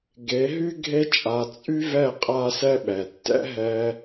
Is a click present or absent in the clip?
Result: absent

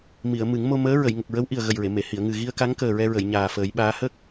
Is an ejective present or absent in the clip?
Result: absent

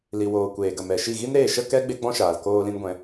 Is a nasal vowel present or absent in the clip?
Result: present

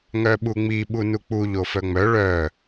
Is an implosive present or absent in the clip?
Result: present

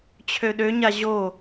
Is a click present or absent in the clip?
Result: absent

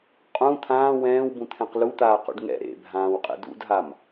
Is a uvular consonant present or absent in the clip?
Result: present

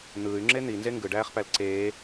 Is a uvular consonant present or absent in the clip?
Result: present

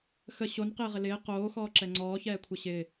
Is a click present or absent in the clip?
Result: present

